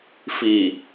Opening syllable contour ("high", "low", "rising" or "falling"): low